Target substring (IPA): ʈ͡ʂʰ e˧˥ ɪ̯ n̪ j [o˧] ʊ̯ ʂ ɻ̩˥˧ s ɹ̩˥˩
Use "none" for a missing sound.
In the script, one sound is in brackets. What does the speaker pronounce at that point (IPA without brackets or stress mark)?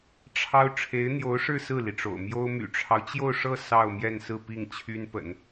o˧˥